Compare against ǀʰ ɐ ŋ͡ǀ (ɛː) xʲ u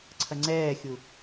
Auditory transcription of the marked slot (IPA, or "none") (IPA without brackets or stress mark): ɛː